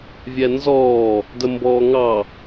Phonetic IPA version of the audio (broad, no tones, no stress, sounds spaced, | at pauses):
vʲ ɛ n z ɔː | d ə m b ɔː ŋ ɑ